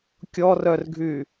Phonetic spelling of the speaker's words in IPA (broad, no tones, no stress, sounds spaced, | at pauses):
kʲ ɔ r œ r ɡʱ y